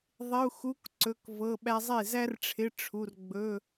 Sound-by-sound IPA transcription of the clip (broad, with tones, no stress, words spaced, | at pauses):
ðˤɪ˧˥˧u̯xu˧˥˧k ǀɵ˧˥˧kvɤ˧˥˧ɓæ˥ zˤe˥˩zæ˥rʈ͡ʂʰɪ˧˥˧ ʈ͡ʂʰu˧˥˧r ɡ͡bɵ˧˥˧